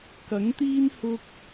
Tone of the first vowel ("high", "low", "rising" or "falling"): rising